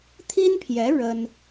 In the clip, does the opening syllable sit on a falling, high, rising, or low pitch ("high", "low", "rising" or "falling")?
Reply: high